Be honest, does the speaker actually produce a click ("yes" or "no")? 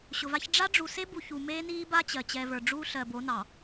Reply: no